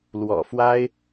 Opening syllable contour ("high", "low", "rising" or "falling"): low